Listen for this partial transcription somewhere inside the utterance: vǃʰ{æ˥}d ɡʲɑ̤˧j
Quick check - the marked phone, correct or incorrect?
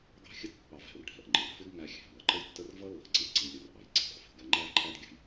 correct